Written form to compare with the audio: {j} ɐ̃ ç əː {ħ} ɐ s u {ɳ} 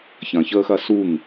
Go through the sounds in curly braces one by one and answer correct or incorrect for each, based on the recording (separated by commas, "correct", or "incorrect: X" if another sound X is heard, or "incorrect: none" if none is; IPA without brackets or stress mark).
incorrect: ç, incorrect: x, incorrect: ŋ